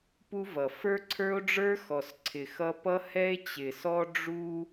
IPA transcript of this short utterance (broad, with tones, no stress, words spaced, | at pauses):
pu˦vʌ˨ fə˞˦ǀʰə˞˦o̯ɖ͡ʐə˞˦ xɔ˨sǀʰɪ˨ xʌ˦ pʌ˦hɛ˦e̯ t͡ɕɪ˨sɔ˦ ɖ͡ʐu˦